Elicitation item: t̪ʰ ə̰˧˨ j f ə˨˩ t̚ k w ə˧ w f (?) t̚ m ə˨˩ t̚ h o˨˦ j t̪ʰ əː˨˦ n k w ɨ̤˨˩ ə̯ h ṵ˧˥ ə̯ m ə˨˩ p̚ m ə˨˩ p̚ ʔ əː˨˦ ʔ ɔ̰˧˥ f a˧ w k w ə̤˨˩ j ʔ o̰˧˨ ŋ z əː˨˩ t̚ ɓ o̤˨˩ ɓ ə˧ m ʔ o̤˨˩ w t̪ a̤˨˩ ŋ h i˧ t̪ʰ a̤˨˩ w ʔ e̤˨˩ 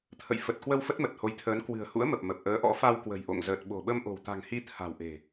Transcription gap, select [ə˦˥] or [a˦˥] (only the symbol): ə˦˥